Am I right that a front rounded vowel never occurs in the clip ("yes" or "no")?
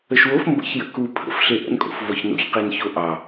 yes